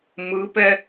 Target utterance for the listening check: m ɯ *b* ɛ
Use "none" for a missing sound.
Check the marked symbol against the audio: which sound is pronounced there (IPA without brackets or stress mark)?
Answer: p